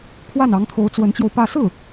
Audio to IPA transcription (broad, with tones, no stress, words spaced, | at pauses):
kʰwa˥˩nɑ˧˥ŋt̪ʰo˧˥ʊ̯ t͡swə˧˥nt͡ɕjo˧ʊ̯pä˥˧ sɹ̩˥˩